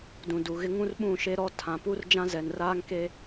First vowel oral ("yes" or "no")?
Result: no